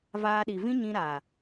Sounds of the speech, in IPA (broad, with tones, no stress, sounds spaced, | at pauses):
v aː˧ ɗ i˨ v ĩ˦ ɲ ĩ˧ ɾ aː˨